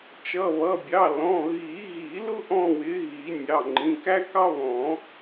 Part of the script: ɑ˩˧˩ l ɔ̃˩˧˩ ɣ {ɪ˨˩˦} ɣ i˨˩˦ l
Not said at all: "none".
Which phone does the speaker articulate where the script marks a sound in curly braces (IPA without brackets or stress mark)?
i˨˩˦